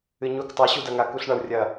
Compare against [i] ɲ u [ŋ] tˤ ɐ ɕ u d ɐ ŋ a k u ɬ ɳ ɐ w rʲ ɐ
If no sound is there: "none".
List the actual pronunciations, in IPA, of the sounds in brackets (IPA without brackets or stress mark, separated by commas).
ɨ, k